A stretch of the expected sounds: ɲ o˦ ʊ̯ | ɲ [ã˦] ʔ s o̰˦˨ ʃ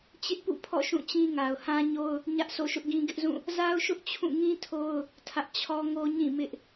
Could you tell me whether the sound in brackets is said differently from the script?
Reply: yes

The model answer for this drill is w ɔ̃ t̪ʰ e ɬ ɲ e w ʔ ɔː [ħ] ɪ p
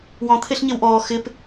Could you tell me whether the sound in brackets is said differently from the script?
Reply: yes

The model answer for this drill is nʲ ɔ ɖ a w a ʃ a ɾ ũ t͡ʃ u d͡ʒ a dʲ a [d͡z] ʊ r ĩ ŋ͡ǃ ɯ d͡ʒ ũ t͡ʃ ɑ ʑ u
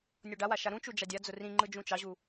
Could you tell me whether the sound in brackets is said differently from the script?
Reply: no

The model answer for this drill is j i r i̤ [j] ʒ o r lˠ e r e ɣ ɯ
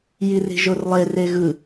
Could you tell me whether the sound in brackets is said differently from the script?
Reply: yes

